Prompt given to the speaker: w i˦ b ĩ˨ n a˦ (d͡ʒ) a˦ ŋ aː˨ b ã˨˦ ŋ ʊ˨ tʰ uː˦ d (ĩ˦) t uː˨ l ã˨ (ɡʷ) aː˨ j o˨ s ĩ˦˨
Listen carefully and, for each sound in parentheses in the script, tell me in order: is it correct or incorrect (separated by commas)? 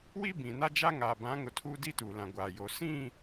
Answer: correct, incorrect, correct